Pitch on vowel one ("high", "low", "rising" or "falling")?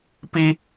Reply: high